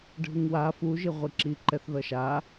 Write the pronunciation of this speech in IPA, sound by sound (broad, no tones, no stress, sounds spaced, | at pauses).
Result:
ɖʱ ɯ ŋ w a f u ʒ i ʁʷ i ǁ i ǃ ɛ θ ð ʌ ʃ a